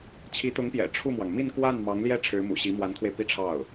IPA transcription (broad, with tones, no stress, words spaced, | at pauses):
t͡ɕʰi˧˥t̪ʊ˧˥ŋpjɛ̰˨˩ ʈ͡ʂʰu˥˩mwɑ˩ŋ mi˥˧nkwa˥˩n mɑ˧˥ŋljɛ˥˩ ʈ͡ʂʰɻ̩˧˥mṵ˨˩ɕi˧˥ mwa˧˥nkʰwe˧ɪ̯ pi˥˧ʈ͡ʂʰɑ˥˩ʊ̯